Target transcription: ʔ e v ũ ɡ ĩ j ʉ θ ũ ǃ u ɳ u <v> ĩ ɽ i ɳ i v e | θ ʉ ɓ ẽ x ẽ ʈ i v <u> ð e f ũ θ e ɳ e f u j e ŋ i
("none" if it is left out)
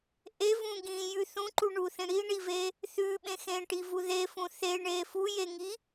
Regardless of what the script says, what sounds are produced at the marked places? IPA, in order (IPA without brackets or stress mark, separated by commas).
θ, u